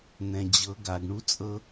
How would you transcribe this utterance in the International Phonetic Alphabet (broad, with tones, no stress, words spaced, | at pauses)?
n̪ɛ̃˧d͡ʑɤ˧˥ ɡa˧ɡɳu˥t͡sʼɤ˥